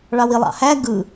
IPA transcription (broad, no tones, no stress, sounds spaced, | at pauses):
ɭ ɑ w i lˠ ɑ̰ h æ ɡ ɯ